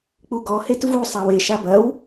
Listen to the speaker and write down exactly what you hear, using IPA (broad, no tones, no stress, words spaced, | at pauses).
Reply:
k͡puɡɔ hetvu sˤawe ʃabɐw